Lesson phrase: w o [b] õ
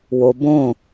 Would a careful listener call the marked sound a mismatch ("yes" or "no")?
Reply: no